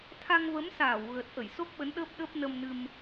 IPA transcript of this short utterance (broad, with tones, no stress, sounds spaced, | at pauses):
t̪ʰ a˧ ŋ v ə˨˦ m s aː˧˩ w ɣ ə˨˩ t̚ ʔ ə˧˩ j s o˦˥ k̚ ɓ ə˨˦ n ɗ əː˦˥ p̚ ɗ əː˦˥ p̚ n ə˧ m n ɨ˧ m